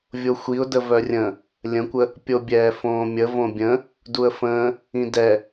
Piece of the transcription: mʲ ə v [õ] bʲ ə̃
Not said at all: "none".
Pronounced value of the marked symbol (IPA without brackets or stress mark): õ